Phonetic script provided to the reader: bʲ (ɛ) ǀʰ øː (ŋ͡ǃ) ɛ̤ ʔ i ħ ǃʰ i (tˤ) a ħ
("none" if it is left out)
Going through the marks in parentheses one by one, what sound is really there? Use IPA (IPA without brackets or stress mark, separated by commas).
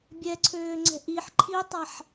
ɛ, ŋ͡ǀ, tˤ